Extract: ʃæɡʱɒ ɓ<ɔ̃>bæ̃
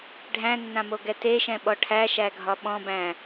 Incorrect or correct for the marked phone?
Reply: correct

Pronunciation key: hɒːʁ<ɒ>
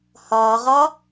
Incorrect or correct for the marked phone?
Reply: correct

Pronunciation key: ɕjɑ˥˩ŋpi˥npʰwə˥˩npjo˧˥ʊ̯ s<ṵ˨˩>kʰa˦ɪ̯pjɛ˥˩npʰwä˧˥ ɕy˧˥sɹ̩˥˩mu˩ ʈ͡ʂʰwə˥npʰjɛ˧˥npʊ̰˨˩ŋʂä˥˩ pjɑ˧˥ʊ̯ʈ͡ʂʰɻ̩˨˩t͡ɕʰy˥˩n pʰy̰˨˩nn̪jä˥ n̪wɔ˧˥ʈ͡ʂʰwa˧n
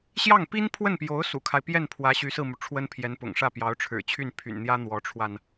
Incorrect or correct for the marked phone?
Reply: correct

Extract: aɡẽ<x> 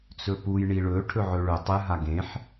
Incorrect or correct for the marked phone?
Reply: incorrect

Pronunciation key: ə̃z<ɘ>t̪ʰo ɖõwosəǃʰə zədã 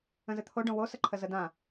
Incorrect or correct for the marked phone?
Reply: correct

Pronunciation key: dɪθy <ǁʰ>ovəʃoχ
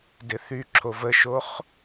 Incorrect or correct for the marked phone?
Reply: correct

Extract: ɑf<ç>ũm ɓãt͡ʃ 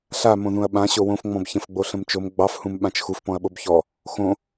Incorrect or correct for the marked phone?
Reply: incorrect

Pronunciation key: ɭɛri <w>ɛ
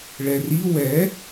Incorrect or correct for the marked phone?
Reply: correct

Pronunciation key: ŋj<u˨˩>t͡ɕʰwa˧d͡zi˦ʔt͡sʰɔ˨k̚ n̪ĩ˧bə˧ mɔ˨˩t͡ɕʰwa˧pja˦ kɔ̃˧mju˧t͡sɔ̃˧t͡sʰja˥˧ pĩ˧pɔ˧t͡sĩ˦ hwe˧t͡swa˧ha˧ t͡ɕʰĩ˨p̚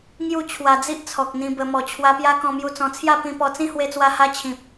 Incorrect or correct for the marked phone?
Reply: incorrect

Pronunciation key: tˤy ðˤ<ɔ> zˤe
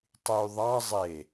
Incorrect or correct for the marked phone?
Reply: incorrect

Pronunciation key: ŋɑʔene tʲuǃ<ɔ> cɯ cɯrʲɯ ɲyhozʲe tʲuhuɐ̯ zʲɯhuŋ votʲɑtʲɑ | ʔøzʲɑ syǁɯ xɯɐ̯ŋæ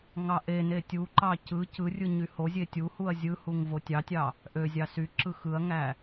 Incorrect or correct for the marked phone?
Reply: incorrect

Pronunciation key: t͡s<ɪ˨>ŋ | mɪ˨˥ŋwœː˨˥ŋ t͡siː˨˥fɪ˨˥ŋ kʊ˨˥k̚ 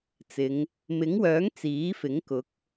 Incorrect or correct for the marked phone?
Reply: incorrect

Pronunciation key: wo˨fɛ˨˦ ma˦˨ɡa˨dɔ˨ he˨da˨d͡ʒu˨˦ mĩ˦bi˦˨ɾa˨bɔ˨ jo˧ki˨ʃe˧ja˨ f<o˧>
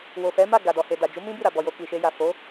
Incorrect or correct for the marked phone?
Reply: incorrect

